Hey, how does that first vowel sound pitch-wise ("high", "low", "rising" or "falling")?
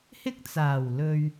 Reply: high